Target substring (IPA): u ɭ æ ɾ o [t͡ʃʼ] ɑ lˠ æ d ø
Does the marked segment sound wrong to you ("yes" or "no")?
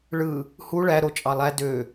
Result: no